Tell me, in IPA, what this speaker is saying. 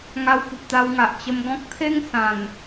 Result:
ŋa˧wpu˨p̚t̪a˧wŋa˨ʔ t͡ɕə˧mɡɔ̃˦k̚ t̪ʰe˦ŋ sã˨˩n

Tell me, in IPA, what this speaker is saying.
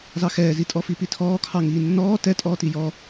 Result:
zɑxɛːzitʼɔ fipitʰɔːkʰɑ ŋiːnːɔː tɛtʼɔːti jɔ

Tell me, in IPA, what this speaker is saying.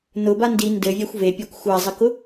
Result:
nʊba ndi ndɘvʲaxʷ vepʲakʷ xʷazˤɘkʊ

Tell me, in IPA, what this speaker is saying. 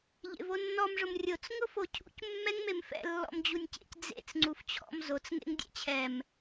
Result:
ʎḛvonːɔmʐʊm rʲot͡s ŋʊfocʰṵc mːɛŋmemfɛ̰ lːɔ̰md͡ʑunʲcḛc d͡zḛt͡s ŋ͡ǀuft͡ɕʰɔ̰m zot͡sŋḛŋ dʲɛ̰t͡ɕʰɛm

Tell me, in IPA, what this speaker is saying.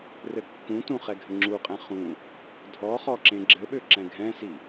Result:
rɘkːũtũ χɛɡʱɘŋ͡ǁuqʼɛ̃ χũ | dʱɔχɔ ǁẽɡ͡ǁɘɓø ǁɛ̃ɡʱɛ̃si

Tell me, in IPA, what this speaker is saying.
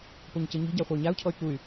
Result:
poɲcɯɲi̤ɟa χʷay̯ɲau̯cʰɔy̯ kuy̯

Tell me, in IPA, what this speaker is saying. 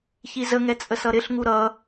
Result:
çizəŋɛ t͡sʼəsʌɾɪɬŋu ɾʌ

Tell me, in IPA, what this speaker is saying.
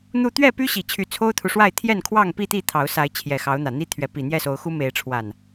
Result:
n̪u˥˨ t̪ɥɛ˥˨py˦ɕi˨˩ t͡ɕʰy˨˦t͡sʰo˦ʊ̯t̪ʰu˨ʂwa˥˨ɪ̯ t̪ʰjɛ˥˨nkʰwɑ˥˨ŋpi˥˨t̪i˥˨ t̪ʰɑ˨˦ʊ̯sa˨˦ɪ̯ t͡ɕʰjɛ˨˩xɑ˨˦ʊ̯n̪ä˨˩n̪i˦ t̪ʰɥɛ˨˦ pi˨˩n̪jɛ˥˨so˨˦ʊ̯xu˦ me˨˦ɪ̯ʈ͡ʂʰwa˨˩n

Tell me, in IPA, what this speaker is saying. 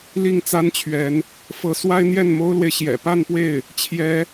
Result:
li˥˩ŋt͡sa˥nt͡ɕʰɥɛ˧˥n | fɤ˧˥ swa˥ɪ̯n̪jɛ˥˩nmo˥ʊ̯lwe˨ɪ̯ ɕjɛ̰˨˩pa˥˧npwe˥˩ɪ̯ | t͡ɕʰjɛ˧˥

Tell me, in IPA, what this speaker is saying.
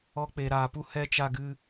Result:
ɔ˦k͡pe˧ɾaː˧pu˦ hɛ˦ t͡ʃa˧ɡɨ˧

